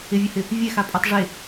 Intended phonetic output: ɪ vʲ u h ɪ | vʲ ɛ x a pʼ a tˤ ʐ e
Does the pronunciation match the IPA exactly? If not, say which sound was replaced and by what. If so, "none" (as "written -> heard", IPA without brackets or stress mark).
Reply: none